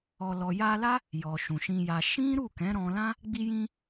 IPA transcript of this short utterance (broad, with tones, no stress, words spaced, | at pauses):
ɔ˨lɔ˨ja˧la˦ | jɔ˨ʃũ˨ʃĩ˧ja˧ ʃĩ˦ ɾu˦˨kɛ̃˨˦ ɾɔ̃˧lã˦ | ɡ͡bi˧jĩ˧